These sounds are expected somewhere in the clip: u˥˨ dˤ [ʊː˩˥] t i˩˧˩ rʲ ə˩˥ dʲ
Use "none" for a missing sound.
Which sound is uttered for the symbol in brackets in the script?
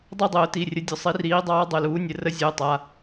ʊː˨˩˦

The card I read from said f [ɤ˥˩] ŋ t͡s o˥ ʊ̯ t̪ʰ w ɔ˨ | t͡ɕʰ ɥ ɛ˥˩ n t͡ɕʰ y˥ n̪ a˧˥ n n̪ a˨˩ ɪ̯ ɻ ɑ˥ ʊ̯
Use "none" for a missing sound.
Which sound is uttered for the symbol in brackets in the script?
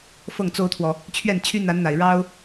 ɤ˥˩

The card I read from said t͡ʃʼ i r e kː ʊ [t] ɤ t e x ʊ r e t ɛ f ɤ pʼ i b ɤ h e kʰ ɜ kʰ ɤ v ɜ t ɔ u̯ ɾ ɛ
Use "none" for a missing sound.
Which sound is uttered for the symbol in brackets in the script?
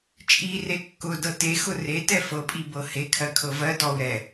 d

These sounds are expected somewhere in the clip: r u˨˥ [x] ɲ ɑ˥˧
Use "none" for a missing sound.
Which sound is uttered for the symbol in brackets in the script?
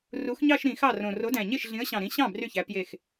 x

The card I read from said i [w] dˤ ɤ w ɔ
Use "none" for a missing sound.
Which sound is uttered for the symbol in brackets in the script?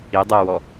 none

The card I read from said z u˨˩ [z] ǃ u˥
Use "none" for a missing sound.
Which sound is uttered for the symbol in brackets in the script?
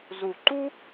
none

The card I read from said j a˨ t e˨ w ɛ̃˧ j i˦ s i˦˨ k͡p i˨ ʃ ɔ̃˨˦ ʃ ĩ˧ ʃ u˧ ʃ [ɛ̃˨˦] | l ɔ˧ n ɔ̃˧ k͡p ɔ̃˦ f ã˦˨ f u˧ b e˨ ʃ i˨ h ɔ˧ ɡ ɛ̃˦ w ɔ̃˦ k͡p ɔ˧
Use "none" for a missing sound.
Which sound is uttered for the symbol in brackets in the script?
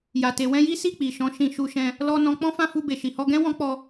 ɛ̃˧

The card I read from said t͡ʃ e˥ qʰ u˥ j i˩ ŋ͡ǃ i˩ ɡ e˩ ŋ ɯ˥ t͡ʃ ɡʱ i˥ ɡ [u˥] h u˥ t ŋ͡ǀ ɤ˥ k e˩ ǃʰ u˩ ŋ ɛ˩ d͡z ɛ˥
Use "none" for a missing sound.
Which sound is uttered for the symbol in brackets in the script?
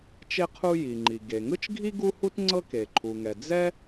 u˥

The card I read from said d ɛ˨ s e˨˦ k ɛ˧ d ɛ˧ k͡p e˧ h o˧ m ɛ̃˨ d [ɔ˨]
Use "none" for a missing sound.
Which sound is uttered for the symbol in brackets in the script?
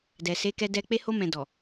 ɔ˨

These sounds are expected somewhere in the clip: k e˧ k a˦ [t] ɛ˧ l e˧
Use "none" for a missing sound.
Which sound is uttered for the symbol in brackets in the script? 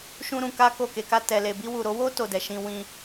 t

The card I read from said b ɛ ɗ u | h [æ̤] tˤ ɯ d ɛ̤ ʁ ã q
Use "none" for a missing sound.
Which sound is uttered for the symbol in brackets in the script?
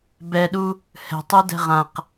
ɛ̤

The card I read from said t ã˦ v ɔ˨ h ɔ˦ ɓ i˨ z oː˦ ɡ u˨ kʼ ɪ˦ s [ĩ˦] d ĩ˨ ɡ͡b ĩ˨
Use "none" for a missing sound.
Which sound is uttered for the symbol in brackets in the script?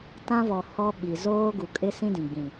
ĩ˦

